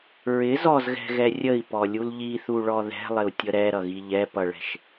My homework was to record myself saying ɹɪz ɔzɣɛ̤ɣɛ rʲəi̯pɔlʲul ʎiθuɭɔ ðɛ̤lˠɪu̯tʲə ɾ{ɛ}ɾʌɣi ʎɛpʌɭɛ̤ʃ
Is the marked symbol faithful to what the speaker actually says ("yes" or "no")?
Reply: yes